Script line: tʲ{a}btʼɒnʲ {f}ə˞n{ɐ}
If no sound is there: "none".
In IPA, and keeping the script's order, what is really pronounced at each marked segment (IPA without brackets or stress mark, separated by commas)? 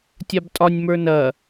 a, m, ɐ